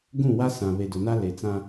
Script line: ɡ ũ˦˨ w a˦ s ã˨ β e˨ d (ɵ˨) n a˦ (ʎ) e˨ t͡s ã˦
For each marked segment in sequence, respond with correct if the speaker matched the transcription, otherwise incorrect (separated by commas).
incorrect, incorrect